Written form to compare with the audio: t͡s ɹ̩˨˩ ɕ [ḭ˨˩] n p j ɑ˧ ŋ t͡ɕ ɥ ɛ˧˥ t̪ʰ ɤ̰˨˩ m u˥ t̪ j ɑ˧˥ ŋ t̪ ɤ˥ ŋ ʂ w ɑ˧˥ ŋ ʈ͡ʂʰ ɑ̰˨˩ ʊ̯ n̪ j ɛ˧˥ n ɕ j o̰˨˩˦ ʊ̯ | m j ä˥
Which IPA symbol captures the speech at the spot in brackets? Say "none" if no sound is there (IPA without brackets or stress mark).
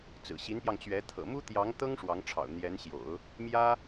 i˧˥